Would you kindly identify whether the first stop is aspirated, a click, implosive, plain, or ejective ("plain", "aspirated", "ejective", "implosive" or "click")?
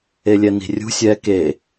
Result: plain